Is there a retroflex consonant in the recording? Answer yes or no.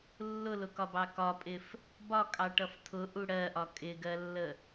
yes